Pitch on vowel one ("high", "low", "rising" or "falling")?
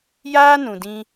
high